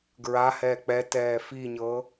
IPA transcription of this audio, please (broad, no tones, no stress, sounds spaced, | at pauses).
ɡ ɹ a h ɛː k͡p ɛ t ɛː f i ɲ ɤ